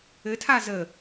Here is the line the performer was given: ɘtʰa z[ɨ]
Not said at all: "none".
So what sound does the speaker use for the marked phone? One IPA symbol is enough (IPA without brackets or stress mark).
ə